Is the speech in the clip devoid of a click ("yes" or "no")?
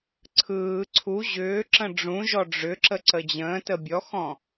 no